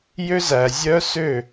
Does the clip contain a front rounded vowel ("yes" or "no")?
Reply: yes